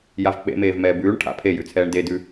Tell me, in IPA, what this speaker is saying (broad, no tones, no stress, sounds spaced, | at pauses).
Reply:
j a v k͡p ḛ m eː v m ɛː b ʉː ɳ ʈʰ a̰ pʰ e j ʉ t͡sʰ ɛː ɳ d e d ʉ